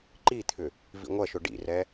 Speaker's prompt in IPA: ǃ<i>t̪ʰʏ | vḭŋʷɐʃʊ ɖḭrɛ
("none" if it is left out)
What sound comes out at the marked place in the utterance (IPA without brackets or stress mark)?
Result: i